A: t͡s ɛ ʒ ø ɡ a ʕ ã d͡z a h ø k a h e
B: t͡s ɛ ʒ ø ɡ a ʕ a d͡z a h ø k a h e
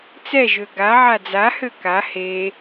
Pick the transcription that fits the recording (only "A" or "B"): B